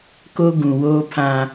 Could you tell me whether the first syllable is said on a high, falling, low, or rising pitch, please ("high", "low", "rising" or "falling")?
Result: high